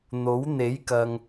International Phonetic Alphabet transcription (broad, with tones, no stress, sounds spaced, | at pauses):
n̪ o˨˥ w n̪ e˨˥ j k ɐ˨ ŋ